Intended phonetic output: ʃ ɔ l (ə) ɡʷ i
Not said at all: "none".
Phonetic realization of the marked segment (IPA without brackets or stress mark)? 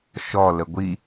ə